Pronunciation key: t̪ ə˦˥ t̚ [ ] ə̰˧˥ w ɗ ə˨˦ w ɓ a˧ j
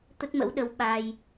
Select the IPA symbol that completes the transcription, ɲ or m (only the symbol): m